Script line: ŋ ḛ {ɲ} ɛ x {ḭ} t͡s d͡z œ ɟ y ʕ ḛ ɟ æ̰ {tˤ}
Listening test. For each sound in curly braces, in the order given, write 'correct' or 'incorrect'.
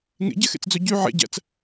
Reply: incorrect, incorrect, incorrect

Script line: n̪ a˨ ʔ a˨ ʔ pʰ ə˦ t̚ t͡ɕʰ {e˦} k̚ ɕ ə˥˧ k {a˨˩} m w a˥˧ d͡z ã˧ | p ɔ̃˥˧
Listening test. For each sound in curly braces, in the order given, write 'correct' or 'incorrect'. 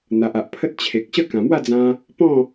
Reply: incorrect, incorrect

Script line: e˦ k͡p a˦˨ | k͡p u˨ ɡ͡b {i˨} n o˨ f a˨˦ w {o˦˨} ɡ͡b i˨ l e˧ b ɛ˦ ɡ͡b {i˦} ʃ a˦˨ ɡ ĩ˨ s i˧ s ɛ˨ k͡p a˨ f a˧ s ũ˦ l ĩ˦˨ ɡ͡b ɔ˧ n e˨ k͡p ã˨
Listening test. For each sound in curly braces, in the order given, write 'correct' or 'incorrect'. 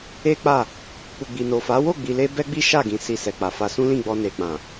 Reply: correct, correct, correct

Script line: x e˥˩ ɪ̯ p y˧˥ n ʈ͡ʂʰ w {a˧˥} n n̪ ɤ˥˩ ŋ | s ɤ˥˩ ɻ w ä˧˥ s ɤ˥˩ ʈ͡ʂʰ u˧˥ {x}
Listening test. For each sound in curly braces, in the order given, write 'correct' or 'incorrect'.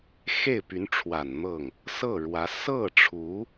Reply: incorrect, incorrect

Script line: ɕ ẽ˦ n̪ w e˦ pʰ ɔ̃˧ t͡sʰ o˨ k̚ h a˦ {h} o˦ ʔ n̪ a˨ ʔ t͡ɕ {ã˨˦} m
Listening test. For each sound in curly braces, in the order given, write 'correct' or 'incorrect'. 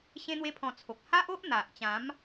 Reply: incorrect, correct

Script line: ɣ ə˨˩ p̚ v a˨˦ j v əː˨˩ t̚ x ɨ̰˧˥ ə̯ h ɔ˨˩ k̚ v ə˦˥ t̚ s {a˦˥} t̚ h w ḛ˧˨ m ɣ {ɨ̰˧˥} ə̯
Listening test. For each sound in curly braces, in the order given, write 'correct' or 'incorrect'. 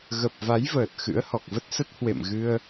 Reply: incorrect, incorrect

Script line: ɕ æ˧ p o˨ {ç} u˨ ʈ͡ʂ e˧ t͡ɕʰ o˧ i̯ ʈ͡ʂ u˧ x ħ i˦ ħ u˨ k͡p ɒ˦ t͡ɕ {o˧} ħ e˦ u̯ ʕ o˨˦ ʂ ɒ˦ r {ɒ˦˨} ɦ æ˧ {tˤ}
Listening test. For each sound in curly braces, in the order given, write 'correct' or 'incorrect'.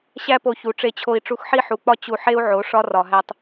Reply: correct, incorrect, incorrect, correct

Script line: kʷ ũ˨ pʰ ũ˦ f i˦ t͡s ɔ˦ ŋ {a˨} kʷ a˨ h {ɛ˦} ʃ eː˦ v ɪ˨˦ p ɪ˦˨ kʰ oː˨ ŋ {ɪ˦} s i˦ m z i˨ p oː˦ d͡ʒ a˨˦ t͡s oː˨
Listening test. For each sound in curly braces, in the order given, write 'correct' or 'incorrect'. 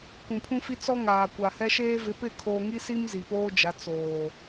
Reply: incorrect, correct, incorrect

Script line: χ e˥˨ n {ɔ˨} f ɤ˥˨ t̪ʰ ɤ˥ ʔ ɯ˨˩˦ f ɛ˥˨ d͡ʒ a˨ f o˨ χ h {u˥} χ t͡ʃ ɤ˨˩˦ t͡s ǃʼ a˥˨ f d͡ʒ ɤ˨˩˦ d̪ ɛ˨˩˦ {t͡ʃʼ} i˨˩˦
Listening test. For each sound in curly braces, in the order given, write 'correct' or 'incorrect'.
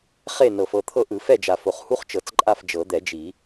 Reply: incorrect, correct, incorrect

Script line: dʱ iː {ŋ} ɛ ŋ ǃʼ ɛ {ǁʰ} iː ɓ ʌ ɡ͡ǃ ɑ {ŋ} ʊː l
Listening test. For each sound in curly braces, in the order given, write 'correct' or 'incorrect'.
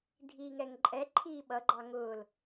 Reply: correct, incorrect, correct

